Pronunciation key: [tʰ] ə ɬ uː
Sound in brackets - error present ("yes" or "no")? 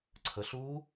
yes